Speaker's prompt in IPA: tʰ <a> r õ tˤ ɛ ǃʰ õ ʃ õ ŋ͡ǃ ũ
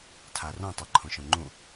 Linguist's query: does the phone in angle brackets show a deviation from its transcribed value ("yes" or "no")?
no